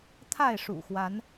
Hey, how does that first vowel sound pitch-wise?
falling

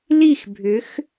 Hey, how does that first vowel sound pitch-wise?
falling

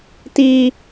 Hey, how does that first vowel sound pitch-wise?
high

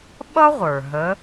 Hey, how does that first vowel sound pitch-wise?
high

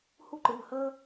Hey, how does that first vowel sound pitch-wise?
high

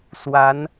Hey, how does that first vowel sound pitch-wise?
rising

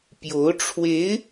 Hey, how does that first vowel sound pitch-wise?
rising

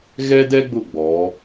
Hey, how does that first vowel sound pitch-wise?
high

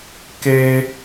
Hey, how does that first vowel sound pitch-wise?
high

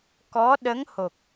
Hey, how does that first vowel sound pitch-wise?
rising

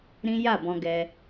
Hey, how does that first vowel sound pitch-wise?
high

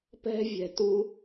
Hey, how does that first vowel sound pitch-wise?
high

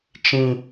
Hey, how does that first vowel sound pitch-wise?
low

